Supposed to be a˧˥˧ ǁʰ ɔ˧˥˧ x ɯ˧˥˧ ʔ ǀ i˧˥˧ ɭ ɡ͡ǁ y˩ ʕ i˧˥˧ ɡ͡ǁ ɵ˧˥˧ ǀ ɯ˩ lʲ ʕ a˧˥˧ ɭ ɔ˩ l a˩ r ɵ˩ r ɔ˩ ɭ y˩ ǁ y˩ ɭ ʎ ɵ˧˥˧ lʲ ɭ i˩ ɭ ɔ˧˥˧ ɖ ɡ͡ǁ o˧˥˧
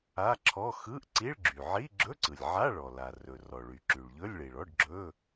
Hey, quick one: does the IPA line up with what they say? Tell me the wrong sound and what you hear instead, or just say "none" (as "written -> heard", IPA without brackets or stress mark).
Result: o˧˥˧ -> ɵ˧˥˧